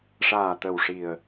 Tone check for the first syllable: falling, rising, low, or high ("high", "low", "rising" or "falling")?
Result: low